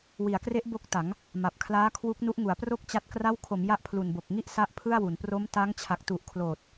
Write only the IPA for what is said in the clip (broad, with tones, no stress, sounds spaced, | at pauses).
w i˩˦ a̯ k r e˦˥ ʔ b o˦˥ k̚ t a˩˦ ŋ | m a˨˩ p̚ kʰ l aː˦˥ kʰ w u˦˥ k̚ n u˦˥ ʔ ŋ u˩˦ a̯ p r o˥˩ k̚ t͡ɕ a˦˥ t̚ k r a˦˥ w kʰ o˩˦ m j a˦˥ ʔ pʰ l u˨˩ n b o˨˩ k̚ ŋ i˥˩ ʔ s a˥˩ ʔ pʰ ɯ˥˩ a̯ w u˩˦ n p r o˦˥ m t a˦˥ ŋ t͡ɕʰ a˨˩ k̚ t u˨˩ ʔ kʰ l oː˨˩ t̚